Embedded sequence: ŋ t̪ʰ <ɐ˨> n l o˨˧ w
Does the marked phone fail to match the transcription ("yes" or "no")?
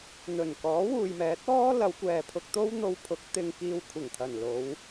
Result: yes